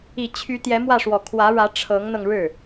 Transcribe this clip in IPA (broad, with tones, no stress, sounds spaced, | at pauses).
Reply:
i˨˩ t͡ɕʰ y˧˥ t̪ j ɛ˧˥ m w ä˥˩ ʂ w ɔ˨˩ kʰ w ä˧˥ ɻ ä˧˥ ʈ͡ʂʰ ɤ˧˥ ŋ n̪ ɤ˧ ŋ ɻ ɻ̩˥˩